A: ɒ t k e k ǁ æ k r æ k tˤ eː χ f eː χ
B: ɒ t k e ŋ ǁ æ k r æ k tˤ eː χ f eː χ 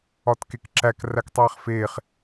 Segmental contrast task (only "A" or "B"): A